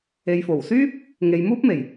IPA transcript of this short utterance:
e˨˧ j f o˨˩ w s yː˥ p̚ | ŋ e˨˧ j m uː˥ p̚ m e˨˩ j

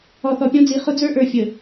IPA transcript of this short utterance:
ɔ˨ θ ɔ˨ pʲ ɔ̃˦ d͡z i˨ χ ʊ˦ d͡z ə˞˦ ʔ ə˞˨ fʲ ə˨

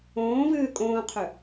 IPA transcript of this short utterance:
õː v ɨː kʼ õː qʰ ø

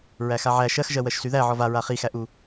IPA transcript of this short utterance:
ɹ æ x a ʕ æ ʃ ɜ x ʒ ɜ w ɜ ʃ s y ð æ ʕ ɔ v a ɹ a χ i x æ ʔ u

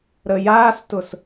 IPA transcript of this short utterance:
ɾ ə j aː s t ʊ s

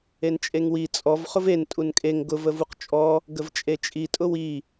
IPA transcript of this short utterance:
e n t͡ʃʼ e ŋ w i t͡sʼ ɔ v χ ʊ v e n tʼ u n kʼ e ŋ ɡ ʊ v ə v u q t͡ʃʼ ɔ | ɡ ə v t͡ʃʼ e t͡ʃʼ i tʼ ʊ w i

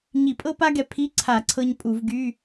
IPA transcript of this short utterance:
ɲ i˧˩˧ pʼ ɤ˥ p a˥ ɡ ɛ˧ pʰ i˧˥˧ ǀʰ a˧˩˧ ǀʰ ɤ˧ ɲ pʼ u˧˩˧ v ɡ y˧˥˧

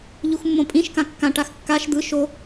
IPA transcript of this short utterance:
ʎ u x mː õ pʼ ĩ ʃ k ã kː ã ʈ a x kː a ʃ d̪ ɯ ʃ o

